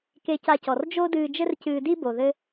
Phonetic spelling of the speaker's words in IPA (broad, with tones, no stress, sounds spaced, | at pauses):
k e˧ c a˧ c ɔ˩ r d͡ʒ o˥ d ɨː˧ d͡ʒ ɘ˥ r c ɨː˧ d i˥ b o˩ ð ɘ˥